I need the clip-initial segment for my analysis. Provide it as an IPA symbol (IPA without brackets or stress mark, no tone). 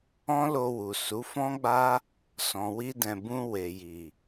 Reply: ɔ̃